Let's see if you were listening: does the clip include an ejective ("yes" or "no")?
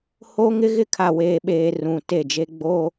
no